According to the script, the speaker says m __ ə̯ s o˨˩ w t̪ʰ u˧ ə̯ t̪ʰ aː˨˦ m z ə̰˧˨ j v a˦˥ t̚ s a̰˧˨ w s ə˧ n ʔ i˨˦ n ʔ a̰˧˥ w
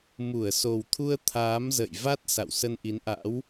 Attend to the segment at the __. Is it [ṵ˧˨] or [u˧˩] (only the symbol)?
u˧˩